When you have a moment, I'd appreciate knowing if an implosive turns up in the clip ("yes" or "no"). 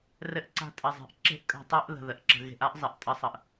no